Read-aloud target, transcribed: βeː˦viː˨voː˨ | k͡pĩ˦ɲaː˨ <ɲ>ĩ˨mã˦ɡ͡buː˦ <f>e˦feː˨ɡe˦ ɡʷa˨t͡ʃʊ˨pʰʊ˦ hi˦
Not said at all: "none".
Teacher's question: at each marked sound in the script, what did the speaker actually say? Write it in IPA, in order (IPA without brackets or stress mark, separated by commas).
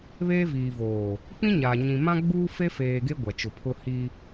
ɲ, f